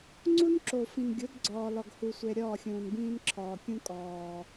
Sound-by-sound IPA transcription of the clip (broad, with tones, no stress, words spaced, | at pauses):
ŋ͡ǀu˦nǁo˨fĩ˨nɡʲo˨˦d ɡ͡ǀɒː˨lɒ˨ɡhu˨sʷe˨ ɾʲɒː˦˨xʲũː˨nbĩː˦n ǁʰɒː˨kʲũ˦kʼɒː˨